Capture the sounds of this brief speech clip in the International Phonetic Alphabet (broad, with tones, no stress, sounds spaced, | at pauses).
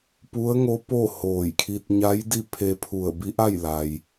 p u˧˥ ə̯ ŋ o˧˥ p o˥˨ h oː˧˩ j kʰ i˧ t̚ ɲ a˧˥ j d i˥˨ pʰ e˧ pʰ u˧˩ ə̯ b i˧˥ ʔ a˥˨ j l a˩ j